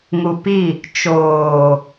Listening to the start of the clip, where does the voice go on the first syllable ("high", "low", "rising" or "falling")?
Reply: low